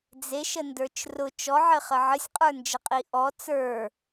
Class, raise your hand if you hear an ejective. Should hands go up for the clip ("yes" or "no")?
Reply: yes